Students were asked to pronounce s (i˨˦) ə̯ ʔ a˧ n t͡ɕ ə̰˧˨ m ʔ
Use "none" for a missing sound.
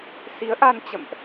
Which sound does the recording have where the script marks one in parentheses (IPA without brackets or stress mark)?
i˨˦